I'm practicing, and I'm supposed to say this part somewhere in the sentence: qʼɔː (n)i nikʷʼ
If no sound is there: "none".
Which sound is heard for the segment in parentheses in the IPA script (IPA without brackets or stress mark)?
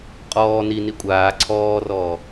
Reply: n